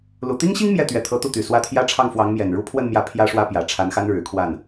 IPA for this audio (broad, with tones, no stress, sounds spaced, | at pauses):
l u˨˩ t̪ i˥ ŋ ɕ i˥ ŋ m j ɛ˥˩ t̪ ɥ ɛ˧˥ t̪ʰ ɤ˧˥ t̪ u˥˩ t̪ y˨˩ s w ä˥˩ t̪ʰ j ä˥ ʈ͡ʂʰ ɑ˥˩ ŋ f w ɑ˧˥ ŋ m j ɛ˨˩ n ɻ u˥ pʰ w ə˥˧ n m j ä˥˩ pʰ j ä˥ ʂ w ä˥ p j ä˨˩ ʈ͡ʂʰ a˧˥ n x a˥ n ɻ ɻ̩˨˩ kʰ w a˥˩ n